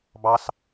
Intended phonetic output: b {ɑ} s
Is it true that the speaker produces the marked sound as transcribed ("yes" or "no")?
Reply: yes